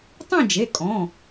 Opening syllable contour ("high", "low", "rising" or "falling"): falling